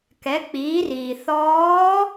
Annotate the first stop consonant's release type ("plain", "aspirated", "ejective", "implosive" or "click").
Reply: plain